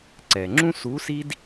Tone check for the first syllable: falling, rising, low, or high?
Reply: low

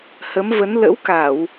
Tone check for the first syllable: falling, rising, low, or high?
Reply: rising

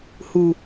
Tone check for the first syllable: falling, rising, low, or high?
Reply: low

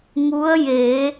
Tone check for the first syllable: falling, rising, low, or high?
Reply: rising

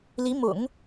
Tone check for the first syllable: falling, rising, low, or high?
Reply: rising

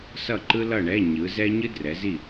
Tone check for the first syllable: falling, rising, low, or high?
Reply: falling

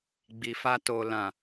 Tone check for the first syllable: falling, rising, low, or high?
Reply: low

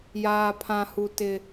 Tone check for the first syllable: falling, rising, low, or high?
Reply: high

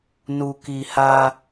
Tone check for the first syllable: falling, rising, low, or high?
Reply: low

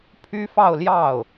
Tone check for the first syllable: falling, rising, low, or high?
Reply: high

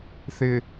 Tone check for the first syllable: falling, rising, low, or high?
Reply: low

